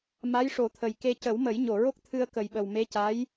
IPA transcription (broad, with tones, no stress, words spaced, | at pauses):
ma˧˥jʂo˨˩˦t̪ʰə˨˩jke˧ cə˨˩˦wmə˨˩˦jɲo˨˩˨ɹo˦˥k̚ t̪ʰɨ˧ə̯kə˨˩jɓə˨˩wme˧˥ ca˧˥j